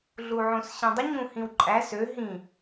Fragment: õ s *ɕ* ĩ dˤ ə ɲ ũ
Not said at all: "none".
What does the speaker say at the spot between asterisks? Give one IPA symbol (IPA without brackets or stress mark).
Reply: ɕ